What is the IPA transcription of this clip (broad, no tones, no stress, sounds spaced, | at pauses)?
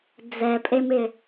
d͡z ɛ pʼ e m ɪ